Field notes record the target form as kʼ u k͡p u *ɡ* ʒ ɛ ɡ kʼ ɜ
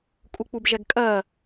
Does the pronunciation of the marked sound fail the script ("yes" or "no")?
yes